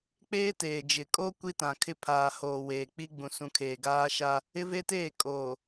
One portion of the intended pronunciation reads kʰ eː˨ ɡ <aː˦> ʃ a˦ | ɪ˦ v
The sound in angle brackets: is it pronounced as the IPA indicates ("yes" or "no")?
yes